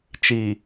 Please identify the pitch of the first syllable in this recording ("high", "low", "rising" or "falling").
low